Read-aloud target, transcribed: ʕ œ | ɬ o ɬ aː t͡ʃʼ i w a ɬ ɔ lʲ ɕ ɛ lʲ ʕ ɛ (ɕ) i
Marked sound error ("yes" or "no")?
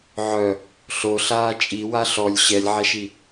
yes